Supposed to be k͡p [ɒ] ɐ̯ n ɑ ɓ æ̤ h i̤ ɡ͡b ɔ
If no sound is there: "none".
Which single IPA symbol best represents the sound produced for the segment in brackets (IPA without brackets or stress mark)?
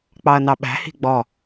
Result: ɑ